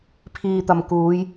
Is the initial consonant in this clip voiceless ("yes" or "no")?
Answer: yes